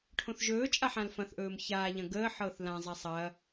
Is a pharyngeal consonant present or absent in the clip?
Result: present